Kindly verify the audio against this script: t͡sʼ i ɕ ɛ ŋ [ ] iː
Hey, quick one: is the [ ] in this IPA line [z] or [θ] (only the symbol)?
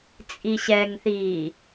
θ